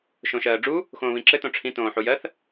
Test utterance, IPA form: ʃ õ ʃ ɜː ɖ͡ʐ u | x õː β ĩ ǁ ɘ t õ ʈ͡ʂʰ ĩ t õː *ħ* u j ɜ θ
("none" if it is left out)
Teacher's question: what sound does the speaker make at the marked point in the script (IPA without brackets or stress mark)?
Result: ħ